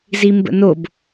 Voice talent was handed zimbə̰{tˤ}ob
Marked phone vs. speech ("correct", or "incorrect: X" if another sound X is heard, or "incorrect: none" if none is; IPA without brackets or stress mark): incorrect: n